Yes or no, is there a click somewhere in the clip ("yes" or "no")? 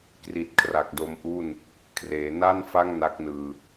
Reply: no